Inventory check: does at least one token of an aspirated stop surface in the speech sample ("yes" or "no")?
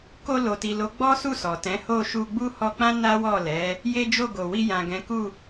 no